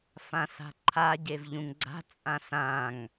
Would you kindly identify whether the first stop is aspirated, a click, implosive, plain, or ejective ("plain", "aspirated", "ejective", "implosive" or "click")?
click